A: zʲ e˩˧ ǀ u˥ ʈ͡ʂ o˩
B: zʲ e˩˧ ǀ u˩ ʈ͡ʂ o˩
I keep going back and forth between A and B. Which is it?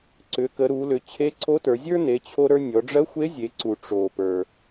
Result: B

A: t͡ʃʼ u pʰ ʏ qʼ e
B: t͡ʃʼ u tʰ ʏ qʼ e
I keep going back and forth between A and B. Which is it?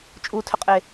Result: B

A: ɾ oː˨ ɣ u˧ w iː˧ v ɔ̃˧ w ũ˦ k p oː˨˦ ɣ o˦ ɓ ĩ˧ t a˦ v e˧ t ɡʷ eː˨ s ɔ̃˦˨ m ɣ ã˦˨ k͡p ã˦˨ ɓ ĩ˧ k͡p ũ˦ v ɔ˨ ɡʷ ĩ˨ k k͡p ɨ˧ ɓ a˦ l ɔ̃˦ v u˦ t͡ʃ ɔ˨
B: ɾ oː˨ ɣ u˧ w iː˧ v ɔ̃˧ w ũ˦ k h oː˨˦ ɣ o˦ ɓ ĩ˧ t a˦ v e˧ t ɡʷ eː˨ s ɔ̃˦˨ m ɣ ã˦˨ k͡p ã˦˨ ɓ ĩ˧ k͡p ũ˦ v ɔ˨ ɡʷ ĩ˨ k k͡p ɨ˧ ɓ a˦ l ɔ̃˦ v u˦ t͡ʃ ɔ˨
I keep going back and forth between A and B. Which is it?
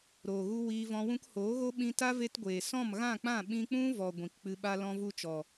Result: B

